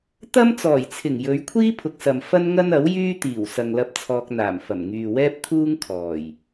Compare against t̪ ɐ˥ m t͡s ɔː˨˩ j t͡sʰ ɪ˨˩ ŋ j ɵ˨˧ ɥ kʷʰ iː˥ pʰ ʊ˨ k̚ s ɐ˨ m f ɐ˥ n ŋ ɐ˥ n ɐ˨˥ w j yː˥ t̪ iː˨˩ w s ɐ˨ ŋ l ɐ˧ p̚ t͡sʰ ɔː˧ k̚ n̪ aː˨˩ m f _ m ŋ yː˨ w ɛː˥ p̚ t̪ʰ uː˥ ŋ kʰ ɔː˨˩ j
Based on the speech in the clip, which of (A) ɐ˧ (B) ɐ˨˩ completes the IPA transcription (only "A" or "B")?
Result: B